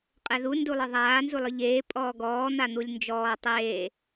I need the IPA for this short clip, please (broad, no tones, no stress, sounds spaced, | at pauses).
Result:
qʼ ɛ ð u n d u lˠ ɯ ðˤ aː n z u lˠ ɯ ʎ eː pʼ ɔː ɡ ɔː n̪ a n̪ u lʲ n d͡ʒ ɔː tˤ eː